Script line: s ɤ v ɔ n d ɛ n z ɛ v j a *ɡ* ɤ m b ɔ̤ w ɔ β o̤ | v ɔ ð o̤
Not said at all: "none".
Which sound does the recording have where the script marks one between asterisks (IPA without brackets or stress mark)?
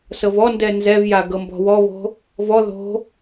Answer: ɡ